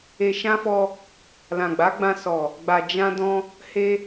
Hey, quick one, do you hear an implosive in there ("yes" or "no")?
no